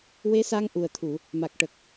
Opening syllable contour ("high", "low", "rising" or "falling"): rising